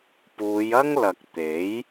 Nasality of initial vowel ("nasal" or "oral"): oral